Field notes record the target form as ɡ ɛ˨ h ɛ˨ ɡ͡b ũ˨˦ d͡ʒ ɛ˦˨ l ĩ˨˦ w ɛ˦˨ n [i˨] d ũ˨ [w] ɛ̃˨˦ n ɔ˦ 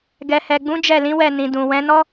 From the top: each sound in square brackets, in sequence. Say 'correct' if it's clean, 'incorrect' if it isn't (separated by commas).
incorrect, correct